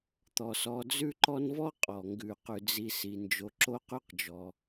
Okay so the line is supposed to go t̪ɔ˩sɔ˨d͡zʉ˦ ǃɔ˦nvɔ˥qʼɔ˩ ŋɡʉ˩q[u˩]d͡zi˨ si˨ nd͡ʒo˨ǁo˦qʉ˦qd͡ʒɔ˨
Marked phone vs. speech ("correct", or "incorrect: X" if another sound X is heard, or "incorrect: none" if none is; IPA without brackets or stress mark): incorrect: ʉ˩